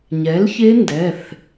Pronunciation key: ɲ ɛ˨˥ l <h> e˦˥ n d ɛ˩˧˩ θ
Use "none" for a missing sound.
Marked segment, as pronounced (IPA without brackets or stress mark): ç